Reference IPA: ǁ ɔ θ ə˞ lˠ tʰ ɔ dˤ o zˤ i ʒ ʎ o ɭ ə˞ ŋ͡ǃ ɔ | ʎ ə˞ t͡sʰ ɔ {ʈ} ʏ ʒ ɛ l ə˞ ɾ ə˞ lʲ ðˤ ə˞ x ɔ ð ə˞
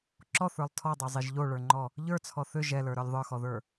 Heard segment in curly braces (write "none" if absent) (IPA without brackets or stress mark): θ